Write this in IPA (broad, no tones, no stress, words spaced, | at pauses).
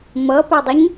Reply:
mʌpɘdˤɘɲ